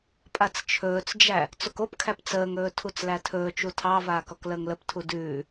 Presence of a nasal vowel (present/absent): absent